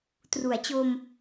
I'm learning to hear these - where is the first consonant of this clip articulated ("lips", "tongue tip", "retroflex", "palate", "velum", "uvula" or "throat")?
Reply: tongue tip